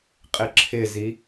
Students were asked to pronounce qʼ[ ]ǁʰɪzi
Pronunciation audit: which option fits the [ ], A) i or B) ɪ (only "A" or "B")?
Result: B